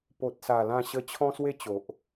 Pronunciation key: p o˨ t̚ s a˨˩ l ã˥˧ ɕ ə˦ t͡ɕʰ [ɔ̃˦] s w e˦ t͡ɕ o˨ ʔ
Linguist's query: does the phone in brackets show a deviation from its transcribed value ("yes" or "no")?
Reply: no